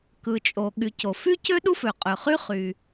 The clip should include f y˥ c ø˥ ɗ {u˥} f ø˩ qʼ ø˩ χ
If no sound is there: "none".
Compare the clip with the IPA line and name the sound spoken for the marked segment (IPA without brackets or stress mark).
u˥